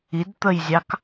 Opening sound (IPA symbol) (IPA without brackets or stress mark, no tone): i